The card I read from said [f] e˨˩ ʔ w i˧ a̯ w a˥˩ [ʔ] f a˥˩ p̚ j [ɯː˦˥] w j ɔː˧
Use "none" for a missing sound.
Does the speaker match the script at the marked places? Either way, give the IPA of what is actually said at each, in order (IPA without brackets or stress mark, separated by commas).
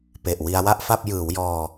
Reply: p, ʔ, ɯː˩˦